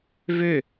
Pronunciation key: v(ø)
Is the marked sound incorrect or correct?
correct